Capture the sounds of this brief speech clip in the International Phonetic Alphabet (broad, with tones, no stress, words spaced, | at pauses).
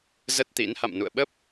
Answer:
zə˦˥t̚t̪ḭ˧˥n ha̰˧˨mnṵ˧˨ə̯ɓə˦˥p̚